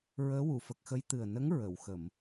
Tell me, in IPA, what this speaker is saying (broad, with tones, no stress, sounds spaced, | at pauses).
ɹ əː˧˥ w u˨˩˨ f ə˨˩ k̚ x ə˧˥ j t̪ ɨ˨˩ ə̯ n ə˧˥ ŋ ɹ ə˨˩˨ w x ə˨˩˨ m